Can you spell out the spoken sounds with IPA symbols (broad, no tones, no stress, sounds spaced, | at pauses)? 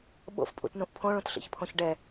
ɓ o̰ f pʼ ṵ t n ũ ʔ pʰ õ ɭ ũ t ɬ ḭ ç pʰ õ ç ɖ ɛ